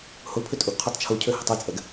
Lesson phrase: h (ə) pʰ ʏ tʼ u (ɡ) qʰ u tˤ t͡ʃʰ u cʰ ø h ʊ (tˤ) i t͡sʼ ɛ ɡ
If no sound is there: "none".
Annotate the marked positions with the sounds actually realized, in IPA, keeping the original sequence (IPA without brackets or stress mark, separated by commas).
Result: ʊ, ɡ, tˤ